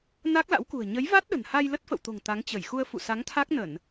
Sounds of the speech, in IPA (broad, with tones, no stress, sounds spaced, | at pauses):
n a˦˥ k̚ l a̰˧˥ w k ṳ˨˩ ə̯ ɲ ə˨˦ j v a˦˥ t̚ ɗ ə̤˨˩ n h a˧ j l ə˦˥ t̚ f ə̰˧˨ w t̪ o̤˨˩ ŋ t̪ a˨˦ ŋ t͡ɕ ə˧˩ j x u˧ ə̯ f ṵ˧˨ s a˨˦ ŋ t̪ʰ a˦˥ k̚ n ə˧˩˨ n